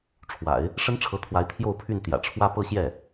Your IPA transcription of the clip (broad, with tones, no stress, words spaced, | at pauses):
ʈ͡ʂʰwa̰˨˩˦ɪ̯ | ʂə˥nʈ͡ʂʰɤ˧˥t̪ʰwa˧˥ɪ̯ t̪ʰjo˥˧ʊ̯pʰy˥˩n t̪jä̰˨˩ʈ͡ʂʰwä˥pɤ˥ɕjɛ˥˩